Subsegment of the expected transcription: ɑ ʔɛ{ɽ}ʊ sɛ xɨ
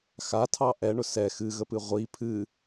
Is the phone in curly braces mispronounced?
yes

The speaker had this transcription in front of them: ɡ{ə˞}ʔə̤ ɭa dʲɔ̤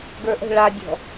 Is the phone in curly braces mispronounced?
no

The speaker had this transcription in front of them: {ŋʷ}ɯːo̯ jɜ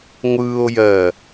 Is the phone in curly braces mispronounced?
no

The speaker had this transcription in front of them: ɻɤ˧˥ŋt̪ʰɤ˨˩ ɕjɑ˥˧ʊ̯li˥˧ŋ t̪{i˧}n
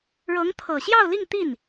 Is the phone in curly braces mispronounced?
yes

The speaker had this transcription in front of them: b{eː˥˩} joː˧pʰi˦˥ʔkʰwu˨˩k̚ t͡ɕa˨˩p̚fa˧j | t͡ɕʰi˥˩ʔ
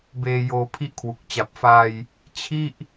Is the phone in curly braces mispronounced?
yes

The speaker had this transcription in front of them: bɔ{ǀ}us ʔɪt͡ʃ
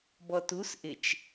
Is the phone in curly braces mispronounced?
yes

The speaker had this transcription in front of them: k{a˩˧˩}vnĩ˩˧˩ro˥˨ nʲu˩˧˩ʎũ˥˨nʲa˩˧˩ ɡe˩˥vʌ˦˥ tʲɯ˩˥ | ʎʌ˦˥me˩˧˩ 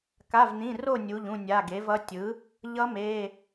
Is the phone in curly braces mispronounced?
no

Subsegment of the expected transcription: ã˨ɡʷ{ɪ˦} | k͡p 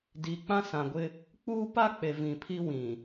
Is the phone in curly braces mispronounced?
no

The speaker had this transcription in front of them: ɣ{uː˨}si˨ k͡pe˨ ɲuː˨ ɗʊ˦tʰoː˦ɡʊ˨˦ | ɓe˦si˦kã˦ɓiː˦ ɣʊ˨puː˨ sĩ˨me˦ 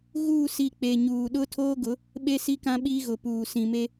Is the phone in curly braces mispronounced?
yes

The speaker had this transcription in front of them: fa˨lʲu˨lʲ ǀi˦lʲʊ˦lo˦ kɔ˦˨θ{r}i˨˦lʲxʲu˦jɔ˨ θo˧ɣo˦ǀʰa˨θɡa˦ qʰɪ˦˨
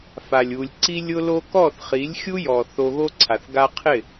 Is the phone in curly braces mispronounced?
yes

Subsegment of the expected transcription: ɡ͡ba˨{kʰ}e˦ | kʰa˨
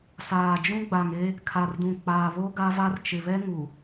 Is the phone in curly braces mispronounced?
yes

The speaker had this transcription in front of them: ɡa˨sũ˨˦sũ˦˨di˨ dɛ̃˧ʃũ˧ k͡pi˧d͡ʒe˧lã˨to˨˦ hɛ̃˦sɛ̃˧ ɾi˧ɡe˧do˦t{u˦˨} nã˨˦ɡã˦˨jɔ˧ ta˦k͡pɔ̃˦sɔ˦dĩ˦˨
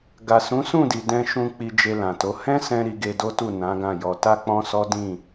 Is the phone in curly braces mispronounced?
no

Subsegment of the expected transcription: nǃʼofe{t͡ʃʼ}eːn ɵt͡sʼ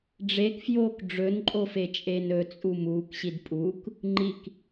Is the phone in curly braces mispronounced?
no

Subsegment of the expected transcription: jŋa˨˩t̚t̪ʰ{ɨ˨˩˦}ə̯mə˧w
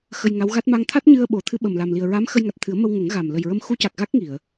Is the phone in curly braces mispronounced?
no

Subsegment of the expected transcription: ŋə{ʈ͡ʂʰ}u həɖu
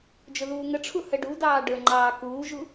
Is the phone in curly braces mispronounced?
no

